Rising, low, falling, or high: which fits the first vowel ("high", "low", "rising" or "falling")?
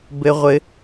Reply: high